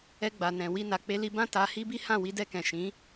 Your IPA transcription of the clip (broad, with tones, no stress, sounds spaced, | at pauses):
ɛ˧ ɡ͡b a˨ n ɛ̃˨ w i˧ n a˨ k͡p e˧ l i˧ b ã˦ t a˧ h i˦ b i˦ h ã˦˨ w i˧ d ɛ˧ k ɛ̃˨ ʃ ĩ˨˦